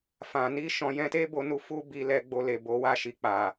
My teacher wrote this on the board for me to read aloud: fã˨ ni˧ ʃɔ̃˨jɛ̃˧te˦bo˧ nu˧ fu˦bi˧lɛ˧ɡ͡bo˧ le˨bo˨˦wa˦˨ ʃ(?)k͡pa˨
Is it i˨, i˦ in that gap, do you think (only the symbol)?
i˨